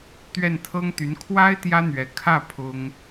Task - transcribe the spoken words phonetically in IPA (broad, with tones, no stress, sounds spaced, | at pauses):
t̪ ɥ ɛ˥˩ n t̪ʰ ɤ˥ ŋ t̪ y˧˥ n kʰ w a˥ ɪ̯ t̪ j ä˥ n̪ ɥ ɛ˧˥ kʰ ä˥˩ pʰ ʊ˥ ŋ